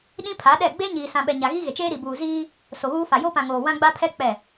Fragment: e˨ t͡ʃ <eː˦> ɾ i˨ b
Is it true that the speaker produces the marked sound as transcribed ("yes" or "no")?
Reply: yes